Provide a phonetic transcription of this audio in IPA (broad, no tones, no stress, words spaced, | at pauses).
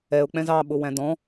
ɛʊ̯k͡pɛ̃z ɑɓʊwæ̃ dɔ̃